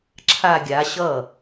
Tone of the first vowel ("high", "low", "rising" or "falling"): falling